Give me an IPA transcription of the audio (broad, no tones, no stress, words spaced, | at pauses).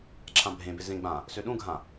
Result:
ǁʰãbʱẽbɪ zẽɡ͡bã | søɗũɡʱã